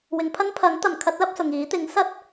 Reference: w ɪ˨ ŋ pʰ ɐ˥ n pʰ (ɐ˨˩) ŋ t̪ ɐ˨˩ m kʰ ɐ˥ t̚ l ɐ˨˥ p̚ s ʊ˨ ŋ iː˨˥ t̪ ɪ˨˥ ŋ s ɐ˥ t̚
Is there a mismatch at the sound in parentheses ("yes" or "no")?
yes